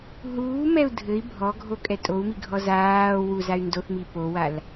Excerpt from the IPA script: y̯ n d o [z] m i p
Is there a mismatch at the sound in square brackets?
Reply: yes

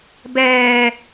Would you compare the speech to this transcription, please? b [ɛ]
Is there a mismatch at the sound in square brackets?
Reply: yes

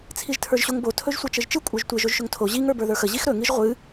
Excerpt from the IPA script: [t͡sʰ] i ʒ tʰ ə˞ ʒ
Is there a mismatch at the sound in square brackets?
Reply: no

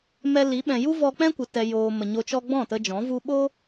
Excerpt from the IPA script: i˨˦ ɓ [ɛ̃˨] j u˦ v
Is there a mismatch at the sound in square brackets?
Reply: no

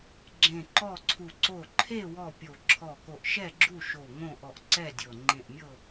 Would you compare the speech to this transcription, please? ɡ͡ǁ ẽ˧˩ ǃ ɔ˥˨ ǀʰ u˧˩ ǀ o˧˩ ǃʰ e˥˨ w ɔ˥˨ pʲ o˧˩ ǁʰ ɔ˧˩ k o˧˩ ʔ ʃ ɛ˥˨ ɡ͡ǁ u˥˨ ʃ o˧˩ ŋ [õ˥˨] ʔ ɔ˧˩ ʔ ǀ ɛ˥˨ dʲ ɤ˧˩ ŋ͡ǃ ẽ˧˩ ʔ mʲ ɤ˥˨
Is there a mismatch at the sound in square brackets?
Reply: no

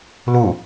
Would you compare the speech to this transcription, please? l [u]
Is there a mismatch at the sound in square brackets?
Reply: no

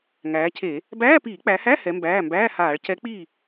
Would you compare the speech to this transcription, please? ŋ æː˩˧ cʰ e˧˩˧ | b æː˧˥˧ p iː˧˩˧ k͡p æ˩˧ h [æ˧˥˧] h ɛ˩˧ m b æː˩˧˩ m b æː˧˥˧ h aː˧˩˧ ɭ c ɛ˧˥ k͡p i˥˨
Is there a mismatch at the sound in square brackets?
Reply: no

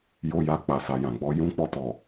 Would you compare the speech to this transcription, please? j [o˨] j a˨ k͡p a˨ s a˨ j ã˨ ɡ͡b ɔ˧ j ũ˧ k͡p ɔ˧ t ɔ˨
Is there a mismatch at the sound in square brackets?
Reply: no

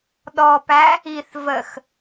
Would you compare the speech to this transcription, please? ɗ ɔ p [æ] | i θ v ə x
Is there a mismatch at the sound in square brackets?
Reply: no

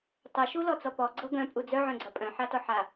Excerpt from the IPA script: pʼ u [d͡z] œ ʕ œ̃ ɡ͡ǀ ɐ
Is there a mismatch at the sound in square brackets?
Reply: no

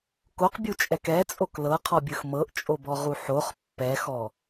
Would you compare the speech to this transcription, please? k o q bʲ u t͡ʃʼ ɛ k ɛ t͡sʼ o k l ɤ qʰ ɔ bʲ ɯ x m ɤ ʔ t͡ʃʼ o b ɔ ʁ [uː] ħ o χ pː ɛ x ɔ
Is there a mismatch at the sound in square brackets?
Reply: yes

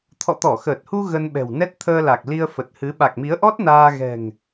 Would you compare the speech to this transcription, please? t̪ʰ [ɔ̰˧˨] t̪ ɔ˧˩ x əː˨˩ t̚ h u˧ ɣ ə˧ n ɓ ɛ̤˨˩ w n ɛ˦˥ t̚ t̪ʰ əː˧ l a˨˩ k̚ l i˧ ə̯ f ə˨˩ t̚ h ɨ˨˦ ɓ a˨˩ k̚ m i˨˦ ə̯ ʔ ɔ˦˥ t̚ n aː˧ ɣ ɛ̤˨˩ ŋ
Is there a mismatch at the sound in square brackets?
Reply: no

